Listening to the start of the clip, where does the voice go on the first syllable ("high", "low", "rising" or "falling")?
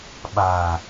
low